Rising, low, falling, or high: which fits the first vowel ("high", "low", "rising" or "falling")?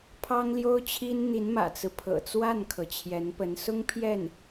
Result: high